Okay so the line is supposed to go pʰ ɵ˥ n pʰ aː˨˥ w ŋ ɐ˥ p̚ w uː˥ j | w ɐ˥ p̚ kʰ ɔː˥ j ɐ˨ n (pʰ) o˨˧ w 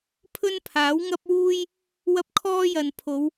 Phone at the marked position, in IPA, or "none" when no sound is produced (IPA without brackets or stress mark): pʰ